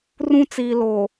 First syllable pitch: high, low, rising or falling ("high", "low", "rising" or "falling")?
high